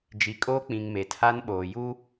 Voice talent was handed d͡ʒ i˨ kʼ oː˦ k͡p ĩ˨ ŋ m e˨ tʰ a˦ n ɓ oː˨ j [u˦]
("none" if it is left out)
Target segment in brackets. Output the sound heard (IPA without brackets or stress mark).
u˦